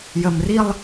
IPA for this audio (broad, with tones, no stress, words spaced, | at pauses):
jə˧mri˥˧lˠ